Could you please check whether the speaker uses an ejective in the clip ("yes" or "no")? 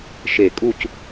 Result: yes